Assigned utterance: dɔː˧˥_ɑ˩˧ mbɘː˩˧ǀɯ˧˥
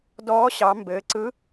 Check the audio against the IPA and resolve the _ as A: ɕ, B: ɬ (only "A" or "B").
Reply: A